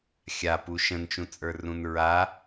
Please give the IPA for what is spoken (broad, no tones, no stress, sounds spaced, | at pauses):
xʲ a p u ʃ ə̃ n t͡ʃ ũ t͡sʼ ə˞ r ũ n ɹ a